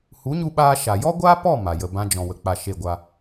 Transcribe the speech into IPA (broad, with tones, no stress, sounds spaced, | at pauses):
h u˨˦ ɲ u˧ ɓ aː˧ ʃ a˨ j ɔ˦ ɡʷ aː˦ p ɔ˦˨ m a˨ j ə˨ b ã˧ d͡ʒ ɔ̃˨ w ə˨ k͡p a˧ ʃ e˦˨ ɡʷ a˧